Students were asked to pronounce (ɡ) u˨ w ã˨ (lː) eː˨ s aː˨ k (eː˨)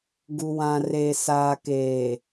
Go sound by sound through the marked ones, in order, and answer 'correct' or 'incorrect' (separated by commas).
correct, incorrect, correct